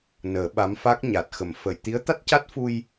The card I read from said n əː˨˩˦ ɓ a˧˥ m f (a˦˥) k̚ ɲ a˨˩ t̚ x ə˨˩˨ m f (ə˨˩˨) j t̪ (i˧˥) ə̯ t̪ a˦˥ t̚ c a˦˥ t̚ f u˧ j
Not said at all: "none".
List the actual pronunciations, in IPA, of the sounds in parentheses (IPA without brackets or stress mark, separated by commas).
a˦˥, ə˨˩˨, i˧˥